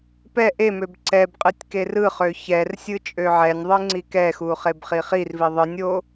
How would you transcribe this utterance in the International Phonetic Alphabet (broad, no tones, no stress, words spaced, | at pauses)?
pɛ ʔemøb ǀɛbqʼɯtʲ kerɯχø çɛrsʲɯ t͡ʃʼøʕɛnʲðˤɯ ŋ͡ǀikɛxu χebχiχirvi ðˤɯnʲo